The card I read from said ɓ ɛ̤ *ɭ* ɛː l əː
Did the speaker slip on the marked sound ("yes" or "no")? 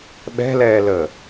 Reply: yes